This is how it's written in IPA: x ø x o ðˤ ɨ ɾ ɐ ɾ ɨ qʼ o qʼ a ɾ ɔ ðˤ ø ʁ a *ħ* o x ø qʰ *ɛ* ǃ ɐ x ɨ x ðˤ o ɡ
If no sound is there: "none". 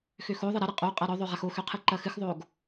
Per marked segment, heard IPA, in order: x, ɨ

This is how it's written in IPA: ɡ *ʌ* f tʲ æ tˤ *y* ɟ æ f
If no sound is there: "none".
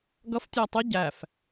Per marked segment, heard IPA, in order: ʌ, ɪ

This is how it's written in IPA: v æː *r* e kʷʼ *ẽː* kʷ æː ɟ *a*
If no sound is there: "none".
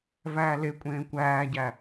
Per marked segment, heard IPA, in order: l, ẽː, æ

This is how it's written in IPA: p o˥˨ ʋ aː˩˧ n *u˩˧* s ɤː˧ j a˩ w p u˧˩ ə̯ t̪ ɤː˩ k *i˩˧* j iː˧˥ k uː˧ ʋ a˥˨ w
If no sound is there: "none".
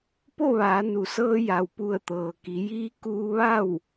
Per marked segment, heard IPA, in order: u˩˧, i˩˧

